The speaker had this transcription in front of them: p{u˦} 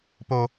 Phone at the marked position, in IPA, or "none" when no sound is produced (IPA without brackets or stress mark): o˦